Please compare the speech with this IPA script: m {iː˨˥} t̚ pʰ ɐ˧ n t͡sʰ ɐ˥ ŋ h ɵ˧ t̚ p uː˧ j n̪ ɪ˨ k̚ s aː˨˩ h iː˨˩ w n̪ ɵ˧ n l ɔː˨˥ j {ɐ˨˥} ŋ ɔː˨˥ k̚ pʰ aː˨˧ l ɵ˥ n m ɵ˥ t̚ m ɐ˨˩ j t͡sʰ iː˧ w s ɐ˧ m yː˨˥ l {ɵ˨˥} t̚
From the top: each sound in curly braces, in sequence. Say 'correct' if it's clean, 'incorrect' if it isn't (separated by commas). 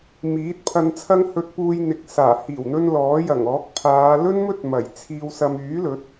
correct, incorrect, correct